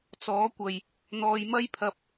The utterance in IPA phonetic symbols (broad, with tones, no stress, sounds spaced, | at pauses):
t͡s ɔː˨˥ kʷ ɐ˨ j | n̪ ɔː˧ j m ɐ˥ j pʰ ɐ˧ p̚